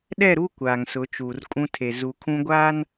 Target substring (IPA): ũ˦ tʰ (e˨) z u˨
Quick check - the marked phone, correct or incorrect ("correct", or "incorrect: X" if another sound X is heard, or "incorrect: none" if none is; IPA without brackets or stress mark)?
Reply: correct